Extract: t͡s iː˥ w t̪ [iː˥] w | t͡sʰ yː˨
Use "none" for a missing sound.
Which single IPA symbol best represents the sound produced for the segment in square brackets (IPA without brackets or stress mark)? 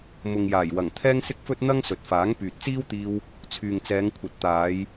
iː˧